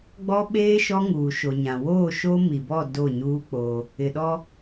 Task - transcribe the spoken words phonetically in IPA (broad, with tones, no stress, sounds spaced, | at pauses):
ɡ͡b ɔ˦ ɓ eː˦ ʃ ɔ˦ ŋ uː˨ ʃ o˨ ɲ ã˨ w oː˦˨ ʃ o˦ m i˨ b ɔ˦˨ d o˦˨ ɲ uː˦ k͡p o˦ | ɪ˨ ɗ ɔ˦